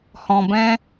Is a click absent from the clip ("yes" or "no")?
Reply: yes